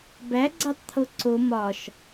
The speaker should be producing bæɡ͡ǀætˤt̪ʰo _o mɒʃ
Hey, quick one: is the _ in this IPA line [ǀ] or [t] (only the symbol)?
ǀ